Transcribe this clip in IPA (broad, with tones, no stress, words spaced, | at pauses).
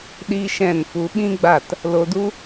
ɗi˧ ʃɛ̃˦˨nfu˧ ɓĩ˦ɡ͡ba˦˨t | lo˧du˦